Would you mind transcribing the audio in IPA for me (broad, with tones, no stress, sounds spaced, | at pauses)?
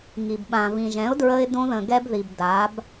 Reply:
ŋ i˨ b ɓ ã˨ v ĩ˨ ʒ ɛ̃˨˦ ʊ̯ d ɹ ə˧ ɪ̯ d õ˧ ð ə̃˨ ɡ ɛ˧ b ð i˨ b d a˨˦ b